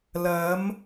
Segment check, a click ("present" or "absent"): absent